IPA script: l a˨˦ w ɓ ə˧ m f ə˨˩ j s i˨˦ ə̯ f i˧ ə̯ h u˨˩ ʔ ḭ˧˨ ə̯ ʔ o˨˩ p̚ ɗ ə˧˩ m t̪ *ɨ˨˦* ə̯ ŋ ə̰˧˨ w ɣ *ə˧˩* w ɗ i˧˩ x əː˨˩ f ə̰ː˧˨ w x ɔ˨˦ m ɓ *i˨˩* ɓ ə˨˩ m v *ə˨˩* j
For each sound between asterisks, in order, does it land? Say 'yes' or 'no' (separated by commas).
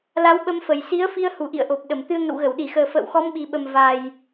no, yes, yes, no